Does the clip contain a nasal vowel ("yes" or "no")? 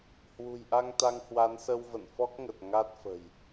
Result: no